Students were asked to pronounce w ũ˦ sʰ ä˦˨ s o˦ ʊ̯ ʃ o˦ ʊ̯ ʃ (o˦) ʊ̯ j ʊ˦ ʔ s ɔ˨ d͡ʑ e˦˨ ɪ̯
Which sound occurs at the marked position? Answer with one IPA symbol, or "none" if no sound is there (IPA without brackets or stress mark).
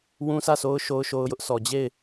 o˦